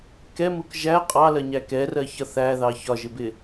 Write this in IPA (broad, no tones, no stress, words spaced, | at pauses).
kɛmuk ʒæ qʼɑlɜɲæ kɛrɜçʌ θæðɑ çɒʒɪbɪ